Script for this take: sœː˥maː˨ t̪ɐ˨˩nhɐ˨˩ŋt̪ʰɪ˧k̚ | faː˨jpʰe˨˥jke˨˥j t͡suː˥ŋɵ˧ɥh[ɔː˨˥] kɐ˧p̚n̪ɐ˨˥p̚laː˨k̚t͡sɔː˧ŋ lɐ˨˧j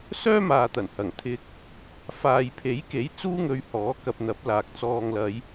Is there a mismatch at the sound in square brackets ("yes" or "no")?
no